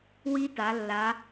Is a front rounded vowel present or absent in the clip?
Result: absent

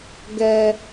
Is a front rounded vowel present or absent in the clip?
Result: absent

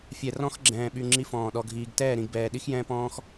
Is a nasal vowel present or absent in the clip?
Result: present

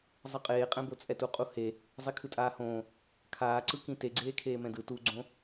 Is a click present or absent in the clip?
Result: present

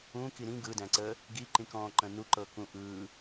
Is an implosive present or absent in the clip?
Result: absent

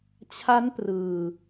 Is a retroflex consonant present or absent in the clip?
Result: absent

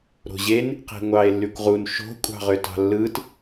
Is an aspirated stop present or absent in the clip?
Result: absent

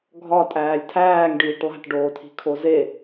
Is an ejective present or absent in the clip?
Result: present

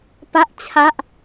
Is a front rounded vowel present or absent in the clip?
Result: absent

